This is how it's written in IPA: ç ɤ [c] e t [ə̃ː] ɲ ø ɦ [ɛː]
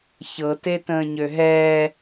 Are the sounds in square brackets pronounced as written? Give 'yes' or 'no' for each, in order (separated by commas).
no, yes, yes